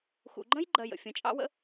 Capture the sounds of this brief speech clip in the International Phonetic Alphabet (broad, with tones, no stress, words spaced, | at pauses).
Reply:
xṵ˨ɡ͡ǃə̃˥j ɡ͡ǃɜ˨jə̰˩ fʲə̃˨t͡ʃʼɑ̰˥wə̰˥